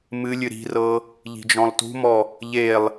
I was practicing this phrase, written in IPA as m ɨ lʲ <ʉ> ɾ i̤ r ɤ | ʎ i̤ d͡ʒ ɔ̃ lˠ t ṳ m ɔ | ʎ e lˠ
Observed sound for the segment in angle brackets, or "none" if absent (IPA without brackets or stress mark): ɨ